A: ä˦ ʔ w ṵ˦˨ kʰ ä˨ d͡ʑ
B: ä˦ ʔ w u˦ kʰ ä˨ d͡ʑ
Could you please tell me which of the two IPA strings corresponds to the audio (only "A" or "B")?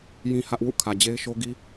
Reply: A